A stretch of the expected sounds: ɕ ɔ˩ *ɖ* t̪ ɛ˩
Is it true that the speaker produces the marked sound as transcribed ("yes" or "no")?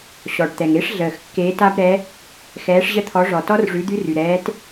yes